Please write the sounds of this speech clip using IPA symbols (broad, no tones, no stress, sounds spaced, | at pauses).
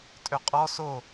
tʼ ø qʼ ɔ s o